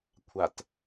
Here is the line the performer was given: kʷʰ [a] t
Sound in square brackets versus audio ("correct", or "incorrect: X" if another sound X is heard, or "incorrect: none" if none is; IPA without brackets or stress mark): correct